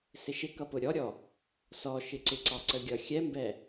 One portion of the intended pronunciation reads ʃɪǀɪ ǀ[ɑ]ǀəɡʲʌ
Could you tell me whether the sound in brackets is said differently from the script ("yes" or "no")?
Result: no